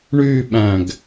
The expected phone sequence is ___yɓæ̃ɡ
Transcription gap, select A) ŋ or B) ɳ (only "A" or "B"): B